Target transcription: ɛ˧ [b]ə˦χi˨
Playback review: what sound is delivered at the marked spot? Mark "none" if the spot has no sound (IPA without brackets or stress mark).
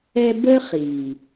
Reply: b